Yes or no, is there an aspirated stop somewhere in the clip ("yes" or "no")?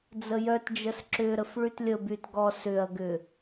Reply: no